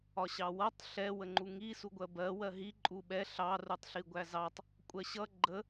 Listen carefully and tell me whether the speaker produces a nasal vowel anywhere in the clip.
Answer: no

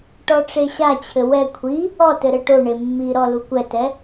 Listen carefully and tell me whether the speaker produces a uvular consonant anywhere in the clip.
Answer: no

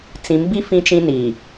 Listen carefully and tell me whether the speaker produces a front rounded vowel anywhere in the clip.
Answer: no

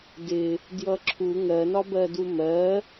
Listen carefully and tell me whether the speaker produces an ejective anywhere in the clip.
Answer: no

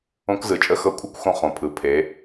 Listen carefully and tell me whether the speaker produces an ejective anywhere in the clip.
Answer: yes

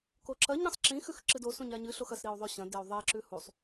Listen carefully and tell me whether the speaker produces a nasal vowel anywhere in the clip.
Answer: yes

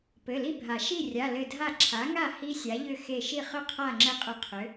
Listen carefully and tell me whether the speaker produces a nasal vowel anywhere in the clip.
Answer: no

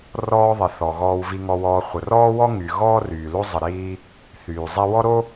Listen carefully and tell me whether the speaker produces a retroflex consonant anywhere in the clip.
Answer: no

